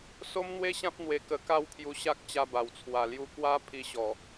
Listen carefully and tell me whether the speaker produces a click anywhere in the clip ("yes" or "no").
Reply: no